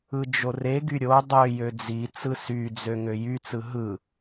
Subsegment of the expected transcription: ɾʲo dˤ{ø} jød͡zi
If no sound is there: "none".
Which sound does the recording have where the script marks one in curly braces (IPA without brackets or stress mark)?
ø